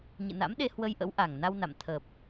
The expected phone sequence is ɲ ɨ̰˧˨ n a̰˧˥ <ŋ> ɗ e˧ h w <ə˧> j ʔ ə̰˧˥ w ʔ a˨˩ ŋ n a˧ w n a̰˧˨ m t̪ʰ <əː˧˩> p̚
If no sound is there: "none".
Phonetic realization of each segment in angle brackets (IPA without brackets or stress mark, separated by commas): m, ə˧, əː˨˩